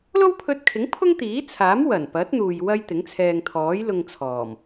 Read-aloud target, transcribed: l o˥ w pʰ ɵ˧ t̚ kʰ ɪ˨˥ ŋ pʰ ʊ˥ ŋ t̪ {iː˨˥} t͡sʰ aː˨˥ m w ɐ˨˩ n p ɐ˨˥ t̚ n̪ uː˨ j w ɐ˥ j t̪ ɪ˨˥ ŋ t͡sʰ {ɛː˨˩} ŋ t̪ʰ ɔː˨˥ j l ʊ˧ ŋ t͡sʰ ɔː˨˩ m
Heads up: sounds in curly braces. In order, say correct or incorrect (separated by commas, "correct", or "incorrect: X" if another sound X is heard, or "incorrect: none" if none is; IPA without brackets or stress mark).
correct, incorrect: ɛː˧